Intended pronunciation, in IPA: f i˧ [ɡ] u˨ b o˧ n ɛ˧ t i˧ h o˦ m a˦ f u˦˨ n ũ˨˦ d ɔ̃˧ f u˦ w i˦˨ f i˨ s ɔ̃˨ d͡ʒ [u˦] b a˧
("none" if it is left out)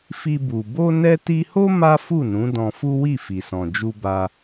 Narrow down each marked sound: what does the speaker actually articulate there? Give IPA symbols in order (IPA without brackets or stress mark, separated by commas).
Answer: b, u˧